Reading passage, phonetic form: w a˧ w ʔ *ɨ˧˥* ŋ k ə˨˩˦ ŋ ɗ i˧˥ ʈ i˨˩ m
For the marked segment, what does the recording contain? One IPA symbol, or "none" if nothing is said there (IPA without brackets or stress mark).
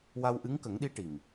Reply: ɨ˧˥